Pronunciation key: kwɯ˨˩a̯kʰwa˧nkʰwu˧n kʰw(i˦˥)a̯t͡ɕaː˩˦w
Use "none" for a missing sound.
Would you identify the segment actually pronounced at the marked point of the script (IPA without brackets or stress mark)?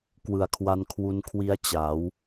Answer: i˦˥